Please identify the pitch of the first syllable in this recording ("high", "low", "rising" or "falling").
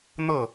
falling